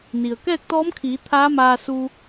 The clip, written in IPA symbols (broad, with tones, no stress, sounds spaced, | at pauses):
n i˩ ə̯ k ɛː˥˨ k̚ t̪ ɔː˧˥ m kʰ iː˩˧ t̪ʰ aː˧˥ m aː˧ s u˧